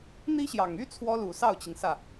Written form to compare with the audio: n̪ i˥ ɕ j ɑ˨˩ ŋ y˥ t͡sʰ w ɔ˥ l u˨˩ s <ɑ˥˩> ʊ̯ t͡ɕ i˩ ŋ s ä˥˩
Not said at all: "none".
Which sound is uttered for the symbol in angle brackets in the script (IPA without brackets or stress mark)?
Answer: ɑ˥˩